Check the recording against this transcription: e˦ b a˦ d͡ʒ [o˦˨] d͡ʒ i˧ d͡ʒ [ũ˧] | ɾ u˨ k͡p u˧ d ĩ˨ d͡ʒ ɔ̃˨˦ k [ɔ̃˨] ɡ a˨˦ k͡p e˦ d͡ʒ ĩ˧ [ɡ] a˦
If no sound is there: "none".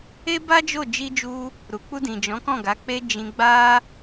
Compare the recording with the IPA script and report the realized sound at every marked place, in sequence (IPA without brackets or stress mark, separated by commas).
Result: o˦˨, u˧, ɔ̃˦˨, ɡ͡b